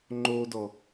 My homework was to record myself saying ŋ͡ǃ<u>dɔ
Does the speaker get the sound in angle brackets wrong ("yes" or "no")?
yes